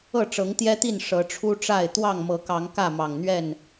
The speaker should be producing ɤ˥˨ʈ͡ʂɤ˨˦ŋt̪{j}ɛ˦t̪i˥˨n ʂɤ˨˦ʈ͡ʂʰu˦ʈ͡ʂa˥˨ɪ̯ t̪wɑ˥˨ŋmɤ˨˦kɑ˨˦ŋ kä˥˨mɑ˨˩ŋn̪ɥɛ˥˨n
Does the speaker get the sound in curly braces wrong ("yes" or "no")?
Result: no